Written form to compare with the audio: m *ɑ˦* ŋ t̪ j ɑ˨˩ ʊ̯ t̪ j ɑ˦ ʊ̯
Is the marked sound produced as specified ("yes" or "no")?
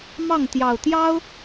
no